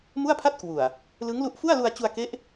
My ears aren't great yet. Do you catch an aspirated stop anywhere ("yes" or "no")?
yes